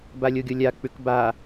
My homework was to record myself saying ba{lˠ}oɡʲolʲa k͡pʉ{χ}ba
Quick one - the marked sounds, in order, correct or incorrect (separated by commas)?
incorrect, incorrect